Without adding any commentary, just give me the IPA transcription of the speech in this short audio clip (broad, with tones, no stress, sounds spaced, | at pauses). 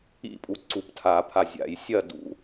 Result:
ḭ˥˨ pʼ u˩˥ ǀ u˩˥ p tʰ a˨˩˦ pʰ a˨ zʲ a̰˨˩˦ j sʲ ɐ˥˨ d ṵ˦˥